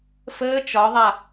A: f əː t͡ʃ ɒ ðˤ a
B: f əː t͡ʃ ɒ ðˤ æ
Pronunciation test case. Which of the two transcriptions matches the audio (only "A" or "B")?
A